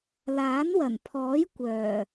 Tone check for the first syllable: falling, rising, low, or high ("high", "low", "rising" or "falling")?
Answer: rising